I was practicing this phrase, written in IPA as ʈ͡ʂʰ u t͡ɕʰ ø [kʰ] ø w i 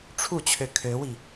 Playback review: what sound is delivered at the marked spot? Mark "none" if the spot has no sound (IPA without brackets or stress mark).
kʰ